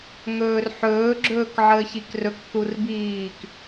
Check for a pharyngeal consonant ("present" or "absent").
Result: present